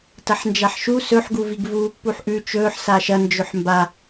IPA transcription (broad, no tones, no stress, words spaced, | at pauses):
tɐħnd͡ʒaħʃu sɵħɡuviɡ vuːpːuħʔʉ t͡ʃɵːħ saʃɐ nd͡ʒɵħmba